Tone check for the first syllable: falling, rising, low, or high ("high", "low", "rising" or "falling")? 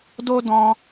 high